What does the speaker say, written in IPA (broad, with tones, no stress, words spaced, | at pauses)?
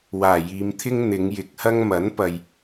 waː˨˩jiː˨˧mt̪ʰɪ˥ŋ n̪ɪ˨˧ŋjɪ˨˥k̚hɐ˥ŋ mɐ˨˥n pɐ˨j